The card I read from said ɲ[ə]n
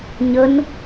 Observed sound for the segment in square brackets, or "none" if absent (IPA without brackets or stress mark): ə